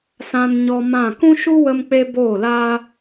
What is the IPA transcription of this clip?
s ã˧ n ɲ ɔ˧ m ã˦˨ k ũ˦ ʃ u˦ w ə˧ m k͡p e˧ b oː˦˨ l aː˦

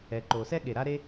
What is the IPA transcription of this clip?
ɛ˩ ǃ o˩ s ɛ˥ ɠ e˩ ɾ a˥ ɾ e˥

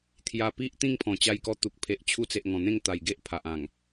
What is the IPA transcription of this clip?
t̪ʰ j a˨˩ p i˦ ʔ t̪ ĩ˥˧ ŋ pʰ ɔ̃˨˩ t͡ɕ a˧ j k ɔ˧ t̪ u˨ k̚ pʰ e˨ ʔ t͡ɕʰ u˧ t͡s e˨ ʔ ŋ ɔ̃˨˩ n̪ ẽ˥˧ ŋ t̪ a˨˩ j ɡ e˦ ʔ pʰ a˨ ʔ ã˨˩ ŋ

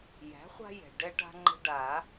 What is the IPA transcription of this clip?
j æ̤˩˥ χʷ a̤˦ j ɛ̤˩ ɖ ɛ˦ ʈ a̤˦ ŋ͡ǃ ə̤˦ ɖ a˨˩˦

